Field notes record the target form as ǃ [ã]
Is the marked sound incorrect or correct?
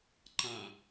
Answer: correct